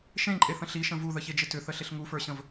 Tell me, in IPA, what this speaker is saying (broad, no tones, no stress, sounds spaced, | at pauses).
ʃ ẽ ǃʼ e θ ə̃ ɬ i ʃ ə̃ v u ð ə ç e d͡ʒ ɪ t ʏ θ ə ɬ ɪ ɬ ŋ u f ə˞ ɕ ə̃ v